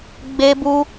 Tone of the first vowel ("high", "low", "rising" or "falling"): high